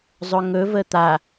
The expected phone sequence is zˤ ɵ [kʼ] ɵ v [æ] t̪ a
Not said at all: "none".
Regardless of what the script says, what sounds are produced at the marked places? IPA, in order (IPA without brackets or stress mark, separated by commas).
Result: ŋ, ə